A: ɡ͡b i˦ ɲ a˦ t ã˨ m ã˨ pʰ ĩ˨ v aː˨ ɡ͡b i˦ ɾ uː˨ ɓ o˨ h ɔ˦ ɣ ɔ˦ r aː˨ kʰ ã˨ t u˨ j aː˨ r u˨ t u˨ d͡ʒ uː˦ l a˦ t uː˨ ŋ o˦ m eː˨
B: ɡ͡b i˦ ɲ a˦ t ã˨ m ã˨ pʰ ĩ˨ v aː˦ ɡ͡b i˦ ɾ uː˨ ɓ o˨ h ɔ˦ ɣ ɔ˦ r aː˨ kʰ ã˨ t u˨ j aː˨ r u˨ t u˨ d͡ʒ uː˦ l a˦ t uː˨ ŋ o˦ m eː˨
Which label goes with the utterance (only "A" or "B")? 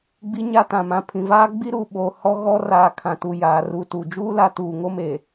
B